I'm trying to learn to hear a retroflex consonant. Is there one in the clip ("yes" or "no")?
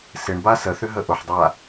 yes